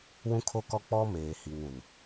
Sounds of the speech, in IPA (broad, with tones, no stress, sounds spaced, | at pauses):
w ũ˦ kʰ o˦ k ɔ˦ k͡p ɔ˦ m eː˨ h i˨ ŋ ũ˨ n